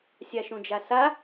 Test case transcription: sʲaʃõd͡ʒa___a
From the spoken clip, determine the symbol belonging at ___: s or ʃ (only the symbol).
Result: s